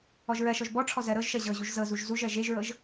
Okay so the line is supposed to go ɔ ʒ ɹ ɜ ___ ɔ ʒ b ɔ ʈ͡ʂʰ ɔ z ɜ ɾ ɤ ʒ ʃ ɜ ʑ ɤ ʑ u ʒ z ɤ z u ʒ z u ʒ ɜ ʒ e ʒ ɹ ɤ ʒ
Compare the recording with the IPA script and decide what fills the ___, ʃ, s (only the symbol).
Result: ʃ